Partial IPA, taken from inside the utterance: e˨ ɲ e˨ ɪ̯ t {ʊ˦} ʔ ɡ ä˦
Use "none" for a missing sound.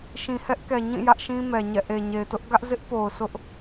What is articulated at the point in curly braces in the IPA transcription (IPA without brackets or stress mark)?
ʊ˦